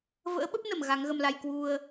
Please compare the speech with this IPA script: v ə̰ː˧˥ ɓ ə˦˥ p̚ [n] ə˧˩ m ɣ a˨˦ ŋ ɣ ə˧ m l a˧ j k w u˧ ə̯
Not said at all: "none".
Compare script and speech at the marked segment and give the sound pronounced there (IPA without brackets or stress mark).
n